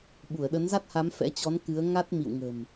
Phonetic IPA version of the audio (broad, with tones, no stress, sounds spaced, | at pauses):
ɓ u˧˩ ə̯ ɗ ə˨˦ n z a˦˥ t̚ h a˨˦ m f ɛ̰˧˥ t͡ɕ ɔ˨˦ n k ɨ˨˦ ə̯ ŋ a˦˥ t̚ m ḭ˧˨ w ŋ ə̤˨˩ m